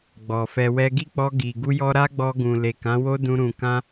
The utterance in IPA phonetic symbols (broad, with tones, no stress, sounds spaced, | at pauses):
ɡ͡b ɔ˨ f ɛ˧ w ɛ˦ ɡ i˦˨ k͡p ɔ˧ ɡ i˨ ɡ u˧ j ɔ˧ ɾ a˦ ɡ͡b ɔ˧ ɡ ũ˨ l e˨ k ã˨˦ w o˦ d ũ˧ ɾ ũ˨ k ã˧